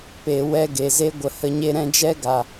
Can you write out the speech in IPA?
p e˨ w ɛ˧ ɡ e˨ z e˦ ɡʷ ə˨ h ə˧ ɲ e˧ ɾ ɛ̃˧ d͡ʒ ɛ˦ ɡ a˨

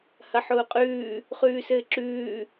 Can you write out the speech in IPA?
h ɐ ħ ʊː qʼ ʉː | χ ʉː s ɘː ǁ ʉː

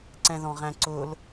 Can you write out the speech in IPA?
ǀ ɛ̃ ð ɔ̃ ʁ æ̃ ǀ ʊ l

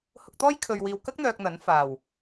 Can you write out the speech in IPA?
h ʊ˧ k̚ t̪ ɔː˥ j kʰ ɵ˨ ɥ w iː˨ w k ɐ˥ k̚ n̪ œː˨ k̚ n̪ ɐ˨˥ n f aː˨˩ w

